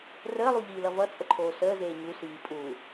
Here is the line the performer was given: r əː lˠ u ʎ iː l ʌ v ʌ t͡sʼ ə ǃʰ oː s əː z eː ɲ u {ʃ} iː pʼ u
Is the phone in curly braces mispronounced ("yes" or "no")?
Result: yes